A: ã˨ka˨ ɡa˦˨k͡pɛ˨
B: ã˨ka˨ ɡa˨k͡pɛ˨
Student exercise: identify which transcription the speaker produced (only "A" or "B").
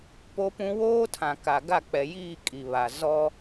A